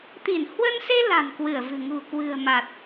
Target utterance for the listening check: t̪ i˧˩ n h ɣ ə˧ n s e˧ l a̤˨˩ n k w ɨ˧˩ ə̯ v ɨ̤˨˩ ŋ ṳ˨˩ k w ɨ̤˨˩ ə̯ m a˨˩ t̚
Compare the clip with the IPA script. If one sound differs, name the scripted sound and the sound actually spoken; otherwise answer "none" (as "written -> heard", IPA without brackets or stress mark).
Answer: ɣ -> w